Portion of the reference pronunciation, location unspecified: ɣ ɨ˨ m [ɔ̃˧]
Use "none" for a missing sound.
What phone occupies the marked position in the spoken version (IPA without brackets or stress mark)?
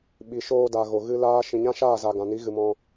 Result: ɔ̃˧